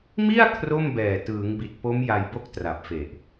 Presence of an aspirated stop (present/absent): present